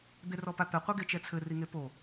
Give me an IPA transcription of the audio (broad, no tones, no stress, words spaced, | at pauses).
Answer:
d̪erɔpat̪ɘ qʷeɡet͡ʃɛt͡sʰɘ riŋepo